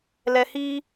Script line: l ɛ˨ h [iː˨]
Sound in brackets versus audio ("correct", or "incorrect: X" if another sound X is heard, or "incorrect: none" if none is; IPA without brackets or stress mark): incorrect: iː˦